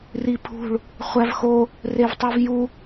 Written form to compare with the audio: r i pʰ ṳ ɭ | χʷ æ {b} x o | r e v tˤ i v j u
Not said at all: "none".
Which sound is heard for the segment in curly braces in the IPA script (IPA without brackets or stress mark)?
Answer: v